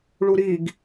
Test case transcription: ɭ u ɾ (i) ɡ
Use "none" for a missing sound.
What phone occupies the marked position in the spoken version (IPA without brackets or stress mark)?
i